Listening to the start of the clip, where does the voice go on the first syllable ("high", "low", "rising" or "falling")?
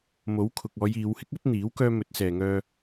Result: rising